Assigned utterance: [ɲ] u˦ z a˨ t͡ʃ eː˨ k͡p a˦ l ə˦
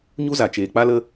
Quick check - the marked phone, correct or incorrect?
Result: correct